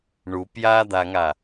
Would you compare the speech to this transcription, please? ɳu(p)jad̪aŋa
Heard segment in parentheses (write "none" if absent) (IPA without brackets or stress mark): p